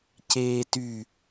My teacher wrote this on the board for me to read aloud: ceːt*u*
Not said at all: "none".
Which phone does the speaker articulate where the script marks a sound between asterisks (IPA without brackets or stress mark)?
y